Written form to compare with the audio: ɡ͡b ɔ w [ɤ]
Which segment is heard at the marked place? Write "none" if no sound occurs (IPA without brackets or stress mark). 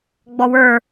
ə˞